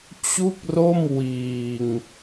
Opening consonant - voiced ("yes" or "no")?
no